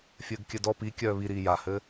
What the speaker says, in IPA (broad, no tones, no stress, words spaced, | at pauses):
fʲɘːɡkʲɘdɔ pikʲœː βiɾiː jahɘː